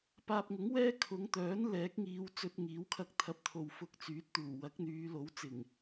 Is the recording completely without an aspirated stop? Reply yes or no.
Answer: no